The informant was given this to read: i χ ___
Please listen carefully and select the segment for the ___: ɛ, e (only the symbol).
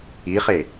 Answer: e